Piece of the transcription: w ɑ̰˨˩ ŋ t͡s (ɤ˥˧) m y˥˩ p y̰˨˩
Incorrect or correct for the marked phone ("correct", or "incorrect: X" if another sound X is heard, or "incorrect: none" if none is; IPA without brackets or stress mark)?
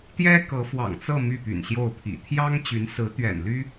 correct